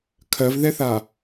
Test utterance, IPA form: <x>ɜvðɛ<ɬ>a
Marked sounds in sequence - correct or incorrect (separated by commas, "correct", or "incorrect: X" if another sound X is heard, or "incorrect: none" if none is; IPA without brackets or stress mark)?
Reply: incorrect: kʰ, incorrect: θ